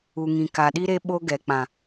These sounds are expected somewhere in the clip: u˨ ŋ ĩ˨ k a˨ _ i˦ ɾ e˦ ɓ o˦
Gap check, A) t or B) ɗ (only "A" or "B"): B